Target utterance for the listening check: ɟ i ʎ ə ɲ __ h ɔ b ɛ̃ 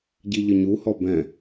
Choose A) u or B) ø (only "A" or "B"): A